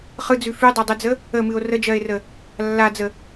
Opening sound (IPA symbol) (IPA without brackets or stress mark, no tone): χ